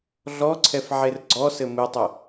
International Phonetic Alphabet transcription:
ɮ ɔ ǀʰ ɛ f ʕ e r ɡ͡ǀ ɔ s ɘ m ɨ tˤ ɐ

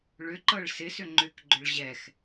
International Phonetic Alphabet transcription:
ɭ ʏ ǃ ɤ ɭ s ɪ s ʏ ŋ͡ǃ ʏ k ɡ͡ǃ ʏ ɭ ʑ ɛ x

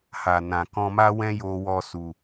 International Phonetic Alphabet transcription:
h a˨ n ã˨ k ɔ̃˧ m a˦ w ɛ̃˦ j o˧ w ɔ˧ s u˨

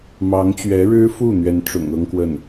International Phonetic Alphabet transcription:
m ɑ˧˥ ŋ t͡ɕ ɥ ɛ˧˥ ɻ ɻ̩˥ f u˥˩ n̪ ɥ ɛ˧˥ n ʈ͡ʂ ʊ̰˨˩ ŋ ɤ˥ ŋ k w ə˥˩ n

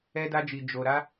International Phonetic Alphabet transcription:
ɛ˦ d a˦ d͡ʒ i˧ d͡ʒ o˧ ɾ a˦

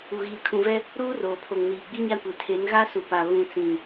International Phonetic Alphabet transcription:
u˨ ɣ iː˨ kʰ ũ˨ v ɛ˦ | ɾ uː˦ r oː˨ pʰ o˨ ŋ n iː˨ ɡ͡b i˦ ɲ a˦ kʷ e˨ tʰ e˨˦ n ɣ a˦ s u˨ p a˨ β ũ˨ t͡s ĩ˨

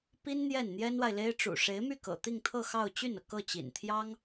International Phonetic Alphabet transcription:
p i˥ n n̪ j ɛ˥˩ n n̪ j ɛ˥ n w a˨ ɪ̯ l e˥ ɪ̯ ʈ͡ʂ ṵ˨˩ ʂ e˧˥ ɪ̯ m y˥˩ k ɤ̰˨˩ t̪ i˥˧ ŋ t̪ʰ ɤ˥˧ x ɑ˥˧ ʊ̯ t͡ɕ y˥˩ n ɤ˩ k ɤ˥˩ t͡ɕ ḭ˨˩ n t̪ʰ j ɑ˥ ŋ

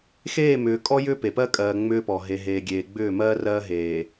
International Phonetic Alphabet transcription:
x eː˦˨ m ʏː˨ kʼ ɔ˦ j ʏː˦ p e˨ p ɜ˦ kʼ ɜː˨ ŋ͡m ʏː˦ p ɔ˨ ɦ e˨ ɦ eː˨ ɡʲ eː˨ ɡ͡b ʏː˦˨ m ɜː˦ r ɜː˦ ɦ eː˨

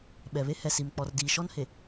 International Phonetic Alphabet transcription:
ɓ ɛ˨ β e˦ h ɛ˨ s i˨ m k͡p ɔ˨ r d iː˨ ʃ ɔ˦ n h e˨

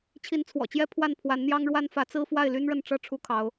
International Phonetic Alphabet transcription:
t͡ɕʰ i˧˥ n t͡sʰ w ɔ̰˨˩ t͡ɕ j ɛ˥ pʰ w a˥˩ n pʰ w a˧˥ n n̪ j ɑ˥ ŋ ɻ w a˥ n f ä˧˥ t͡s ɹ̩˥ f w a˥˩ ɪ̯ l y˥ n ɻ ə˥˩ n ʈ͡ʂ ɤ˥ ʈ͡ʂʰ u˥ kʰ ɑ˧˥ ʊ̯

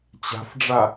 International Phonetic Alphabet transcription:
t͡ɕ a̤ f ɖ͡ʐ a

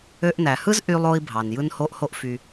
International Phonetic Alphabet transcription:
ø˧ ʔ n æ˩ h ɯ˥ z ʔ y˧ lˠ o˧ i̯ bʱ ɑ˩ n j ɯ˧ n h o˧ ʔ h o˧ ʔ f y˩

